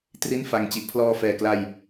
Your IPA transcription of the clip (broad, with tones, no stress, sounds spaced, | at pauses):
t r i˥˩ n f a˧ ŋ t͡ɕ i˨˩ ʔ pʰ l ɔː˧ f ɛː˨˩ k l a˧ j